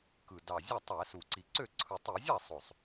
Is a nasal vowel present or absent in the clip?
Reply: absent